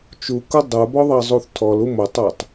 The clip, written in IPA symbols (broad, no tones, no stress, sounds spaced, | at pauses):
t͡ʃ u k u dˤ ə˞ b ɔ ðˤ ɑ zˤ u θ tʰ ɔ l u m o tˤ ə˞ tˤ